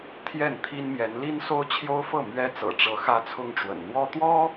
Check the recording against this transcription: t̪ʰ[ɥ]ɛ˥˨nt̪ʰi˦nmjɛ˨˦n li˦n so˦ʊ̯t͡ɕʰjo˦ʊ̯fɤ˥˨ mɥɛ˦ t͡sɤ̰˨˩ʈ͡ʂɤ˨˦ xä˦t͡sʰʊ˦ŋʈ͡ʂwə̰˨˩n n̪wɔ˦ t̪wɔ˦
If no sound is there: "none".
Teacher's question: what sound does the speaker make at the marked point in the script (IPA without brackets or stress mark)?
j